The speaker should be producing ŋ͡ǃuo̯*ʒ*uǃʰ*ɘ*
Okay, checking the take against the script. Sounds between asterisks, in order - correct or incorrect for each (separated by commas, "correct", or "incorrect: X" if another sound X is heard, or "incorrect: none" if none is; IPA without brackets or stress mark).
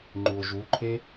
correct, incorrect: e